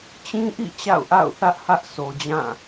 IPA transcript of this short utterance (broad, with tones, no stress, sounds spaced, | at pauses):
t͡ɕ ĩ˦ ʔ ḭ˦˨ t͡ɕ a̰˦˨ ʊ̯ ʔ a̰˦˨ ʊ̯ θ ä˦ ʔ h ä˦ ʔ sʰ o˨ d͡ʑ ã˦˨